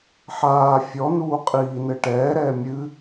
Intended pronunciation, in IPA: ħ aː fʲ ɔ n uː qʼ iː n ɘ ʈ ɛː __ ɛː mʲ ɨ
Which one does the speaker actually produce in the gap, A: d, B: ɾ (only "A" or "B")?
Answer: B